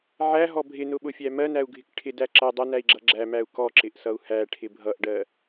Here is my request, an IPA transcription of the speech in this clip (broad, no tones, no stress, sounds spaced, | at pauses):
ʕ æ ɦ ɔ bʱ ɪ n ʊ ɓ ʊ fʲ æ m ɜ n æ u̯ ɡʱ ɪ k ʈʰ ɪ d æ ǁ ʌ dˤ ʌ n æ i̯ ɡ͡ǁ ʌ ɡ͡ǁ æ m æ u̯ k ɔ ǁ ɪ ʔ s ʌ u̯ h æ ʈʰ ɪ bʱ ʌ ʔ ɖ ɜ